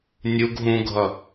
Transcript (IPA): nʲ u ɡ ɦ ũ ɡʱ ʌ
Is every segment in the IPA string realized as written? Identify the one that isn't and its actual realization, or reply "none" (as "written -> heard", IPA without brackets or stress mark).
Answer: none